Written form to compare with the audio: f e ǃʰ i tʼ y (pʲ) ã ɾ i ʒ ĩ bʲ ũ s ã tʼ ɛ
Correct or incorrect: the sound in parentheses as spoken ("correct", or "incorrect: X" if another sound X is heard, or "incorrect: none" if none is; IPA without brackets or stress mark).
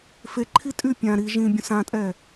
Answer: correct